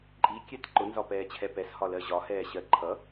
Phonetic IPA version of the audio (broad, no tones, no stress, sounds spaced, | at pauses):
ǃʼ i kʲ ɛ t ǃ ʊ n z ɒ p ɛː t͡ɕʰ ɛ p ɛ s h ɒ l ɜ ʑ ɒ h ɛː ɕ ɜ ǃʰ ʌ